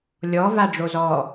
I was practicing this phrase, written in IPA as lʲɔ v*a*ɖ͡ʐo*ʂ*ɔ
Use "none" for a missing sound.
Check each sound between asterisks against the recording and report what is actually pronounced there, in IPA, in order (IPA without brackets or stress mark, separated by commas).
a, z